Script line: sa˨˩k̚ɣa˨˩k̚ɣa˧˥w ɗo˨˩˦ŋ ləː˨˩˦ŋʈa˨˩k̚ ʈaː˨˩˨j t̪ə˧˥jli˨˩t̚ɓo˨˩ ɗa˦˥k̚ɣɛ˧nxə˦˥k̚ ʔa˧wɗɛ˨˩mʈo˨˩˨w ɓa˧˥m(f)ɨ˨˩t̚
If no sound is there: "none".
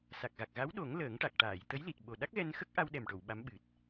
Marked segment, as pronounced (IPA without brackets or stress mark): ɓ